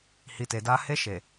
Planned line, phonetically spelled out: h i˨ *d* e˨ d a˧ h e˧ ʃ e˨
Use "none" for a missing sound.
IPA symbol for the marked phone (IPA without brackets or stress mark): t